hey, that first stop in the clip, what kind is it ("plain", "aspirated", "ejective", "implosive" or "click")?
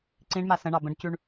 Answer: click